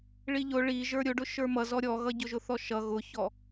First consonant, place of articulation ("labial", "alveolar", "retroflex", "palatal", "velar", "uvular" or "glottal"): retroflex